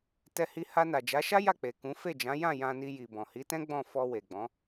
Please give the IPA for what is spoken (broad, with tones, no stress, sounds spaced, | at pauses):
t ɛ˧ h i˧ h a˧ n a˨ d͡ʒ a˨˦ ʃ a˦ j a˦˨ k͡p e˨ k ũ˨˦ f e˦˨ d͡ʒ ã˨˦ j ã˦˨ j ã˧ n i˧ j i˨ b ɔ̃˨ h i˨˦ t ɛ̃˦ ɡ͡b ɔ̃˦˨ f ɔ˧ w e˨ ɡ͡b ɔ̃˨˦